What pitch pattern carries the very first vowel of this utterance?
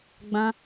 high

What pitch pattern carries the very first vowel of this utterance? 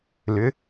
rising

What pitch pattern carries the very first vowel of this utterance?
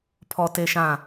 high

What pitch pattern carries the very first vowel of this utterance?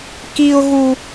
high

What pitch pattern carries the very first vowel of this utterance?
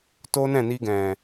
high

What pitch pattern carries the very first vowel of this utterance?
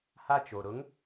high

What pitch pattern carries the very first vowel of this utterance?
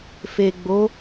low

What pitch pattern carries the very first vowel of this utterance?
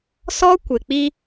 high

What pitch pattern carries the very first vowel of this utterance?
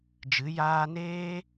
rising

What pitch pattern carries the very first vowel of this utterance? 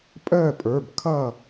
falling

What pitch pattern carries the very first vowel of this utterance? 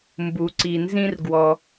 low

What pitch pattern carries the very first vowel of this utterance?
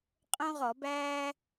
high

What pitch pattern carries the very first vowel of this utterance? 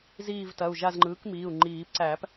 falling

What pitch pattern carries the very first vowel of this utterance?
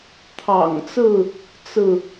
low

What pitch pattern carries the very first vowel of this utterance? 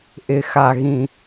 low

